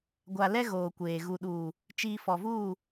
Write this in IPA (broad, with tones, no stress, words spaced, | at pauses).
ɡʷa˨lɛ˦ ɣoː˨kʷeː˨ ɣu˨ɗuː˨ | t͡ʃiː˨ fɔ˨vuː˦˨